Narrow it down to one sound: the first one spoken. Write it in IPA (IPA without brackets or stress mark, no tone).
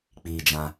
k͡p